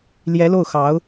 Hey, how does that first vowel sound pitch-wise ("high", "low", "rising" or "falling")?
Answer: rising